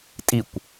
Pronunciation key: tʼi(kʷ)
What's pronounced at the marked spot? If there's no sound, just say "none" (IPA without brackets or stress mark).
kʷ